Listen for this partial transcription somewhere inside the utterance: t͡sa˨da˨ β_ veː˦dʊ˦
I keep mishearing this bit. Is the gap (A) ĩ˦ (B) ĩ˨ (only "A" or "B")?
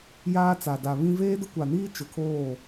A